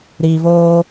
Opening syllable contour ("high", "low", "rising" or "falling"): low